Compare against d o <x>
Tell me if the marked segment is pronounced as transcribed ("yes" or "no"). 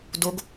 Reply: no